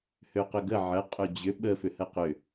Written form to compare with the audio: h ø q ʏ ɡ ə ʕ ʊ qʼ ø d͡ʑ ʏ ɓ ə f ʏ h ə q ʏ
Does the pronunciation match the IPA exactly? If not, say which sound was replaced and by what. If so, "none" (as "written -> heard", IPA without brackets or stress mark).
ʊ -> ə